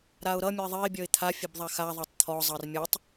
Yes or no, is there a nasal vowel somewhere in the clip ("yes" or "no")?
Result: no